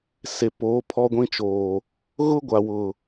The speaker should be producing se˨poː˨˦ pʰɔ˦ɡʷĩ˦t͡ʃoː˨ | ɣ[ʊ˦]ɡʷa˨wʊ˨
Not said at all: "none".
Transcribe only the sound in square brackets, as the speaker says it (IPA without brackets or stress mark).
ʊ˦